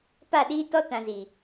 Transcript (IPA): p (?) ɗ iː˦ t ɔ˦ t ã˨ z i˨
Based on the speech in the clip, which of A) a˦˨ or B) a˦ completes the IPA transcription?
A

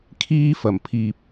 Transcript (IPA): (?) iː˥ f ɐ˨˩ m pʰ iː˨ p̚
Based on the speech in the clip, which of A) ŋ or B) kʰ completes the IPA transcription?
B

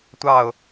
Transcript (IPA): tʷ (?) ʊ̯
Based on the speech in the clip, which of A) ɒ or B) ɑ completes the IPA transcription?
B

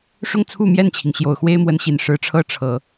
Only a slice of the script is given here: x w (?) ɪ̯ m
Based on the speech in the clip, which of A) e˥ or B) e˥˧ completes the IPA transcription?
A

